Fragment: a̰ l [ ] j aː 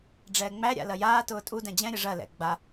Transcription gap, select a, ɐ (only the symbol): ɐ